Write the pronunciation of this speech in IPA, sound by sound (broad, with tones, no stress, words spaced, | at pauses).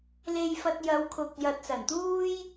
le˧jfɐ˧t̚jɐ˨˧w kʰʊ˨k̚jɐ˨t̚sɐ˨˩nt̪uː˥j